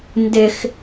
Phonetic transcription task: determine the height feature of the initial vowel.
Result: high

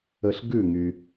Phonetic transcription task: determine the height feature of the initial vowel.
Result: mid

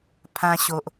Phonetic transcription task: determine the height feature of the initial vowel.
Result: low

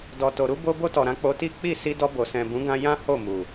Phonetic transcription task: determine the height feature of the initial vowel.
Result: mid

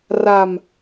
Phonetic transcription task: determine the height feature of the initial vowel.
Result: low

